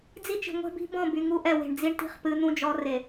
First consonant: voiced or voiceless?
voiced